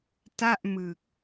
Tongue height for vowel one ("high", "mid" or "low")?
low